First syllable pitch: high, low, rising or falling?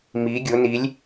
rising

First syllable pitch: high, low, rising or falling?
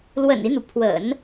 low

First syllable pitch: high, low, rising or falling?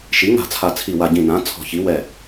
rising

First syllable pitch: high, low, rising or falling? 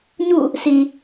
falling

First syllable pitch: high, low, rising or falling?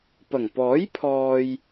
low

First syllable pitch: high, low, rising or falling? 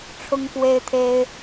high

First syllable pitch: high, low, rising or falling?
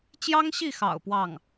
high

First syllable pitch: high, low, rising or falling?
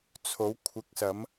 rising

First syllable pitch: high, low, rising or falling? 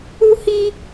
high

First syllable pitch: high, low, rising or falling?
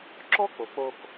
high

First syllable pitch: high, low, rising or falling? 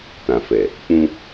low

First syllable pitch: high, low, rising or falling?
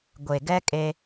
low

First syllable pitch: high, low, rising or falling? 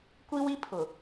high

